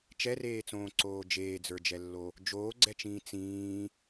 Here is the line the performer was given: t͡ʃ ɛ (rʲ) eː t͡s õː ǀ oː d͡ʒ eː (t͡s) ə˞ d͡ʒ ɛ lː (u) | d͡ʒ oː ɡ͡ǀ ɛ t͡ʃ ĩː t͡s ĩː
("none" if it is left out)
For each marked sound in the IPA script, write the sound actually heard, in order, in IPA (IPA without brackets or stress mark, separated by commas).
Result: r, d͡z, o